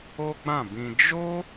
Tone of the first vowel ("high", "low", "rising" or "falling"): high